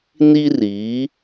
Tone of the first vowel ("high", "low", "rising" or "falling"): high